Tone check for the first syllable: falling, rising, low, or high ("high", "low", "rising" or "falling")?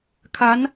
rising